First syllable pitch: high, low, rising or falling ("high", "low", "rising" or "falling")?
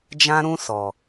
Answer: high